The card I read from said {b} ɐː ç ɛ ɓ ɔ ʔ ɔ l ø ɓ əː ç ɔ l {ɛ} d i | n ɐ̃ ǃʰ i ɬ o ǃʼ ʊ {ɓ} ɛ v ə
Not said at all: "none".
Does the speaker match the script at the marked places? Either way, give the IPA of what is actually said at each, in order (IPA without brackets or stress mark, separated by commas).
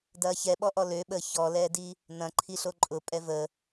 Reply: d, ɛː, pʼ